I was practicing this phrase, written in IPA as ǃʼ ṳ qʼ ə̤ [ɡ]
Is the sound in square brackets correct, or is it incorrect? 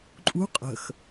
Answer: incorrect